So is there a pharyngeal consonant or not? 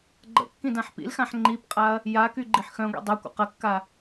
yes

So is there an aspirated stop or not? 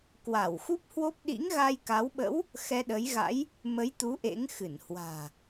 no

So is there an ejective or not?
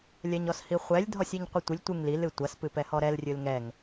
no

